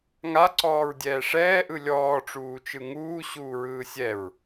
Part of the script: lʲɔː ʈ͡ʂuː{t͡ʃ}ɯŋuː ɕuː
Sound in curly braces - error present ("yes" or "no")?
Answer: no